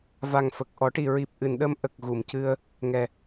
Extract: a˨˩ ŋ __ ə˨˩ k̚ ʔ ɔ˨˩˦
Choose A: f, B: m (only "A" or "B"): A